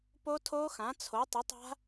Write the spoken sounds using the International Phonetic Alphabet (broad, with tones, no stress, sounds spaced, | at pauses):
p o˦˥ tʰ oː˦˥ x ã˨˥ t͡sʰ o˨˥ tˤ ə˨˥ tˤ a̤˦˥